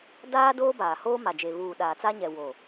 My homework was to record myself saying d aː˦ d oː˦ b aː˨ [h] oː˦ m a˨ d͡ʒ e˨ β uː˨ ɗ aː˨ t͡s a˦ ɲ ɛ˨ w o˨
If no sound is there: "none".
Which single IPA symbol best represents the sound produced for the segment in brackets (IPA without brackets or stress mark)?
h